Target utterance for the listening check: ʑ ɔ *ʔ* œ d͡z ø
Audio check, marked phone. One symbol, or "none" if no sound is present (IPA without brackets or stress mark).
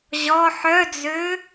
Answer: ħ